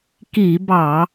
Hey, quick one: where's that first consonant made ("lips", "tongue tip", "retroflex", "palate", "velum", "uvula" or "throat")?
velum